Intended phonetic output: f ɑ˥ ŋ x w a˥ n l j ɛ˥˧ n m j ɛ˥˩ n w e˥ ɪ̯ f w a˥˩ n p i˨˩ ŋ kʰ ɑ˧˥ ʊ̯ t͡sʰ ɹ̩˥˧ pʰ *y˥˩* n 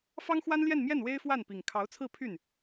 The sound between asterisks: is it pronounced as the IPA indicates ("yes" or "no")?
yes